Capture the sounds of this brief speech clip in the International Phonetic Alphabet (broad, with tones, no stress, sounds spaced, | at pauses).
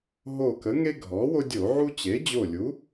ɦ o˧˩ k ə˩˥ ŋ e˦ ɡʱ ɔ˩˥ w o˦ dʲ o˧˩˧ ʕ u˦ t͡ɕ e˩˥ d͡ʑ o˧˩ lʲ u˩˥